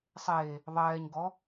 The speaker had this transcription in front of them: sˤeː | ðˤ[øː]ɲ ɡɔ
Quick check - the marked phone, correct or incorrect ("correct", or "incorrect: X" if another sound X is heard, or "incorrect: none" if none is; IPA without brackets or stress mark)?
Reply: incorrect: ɛː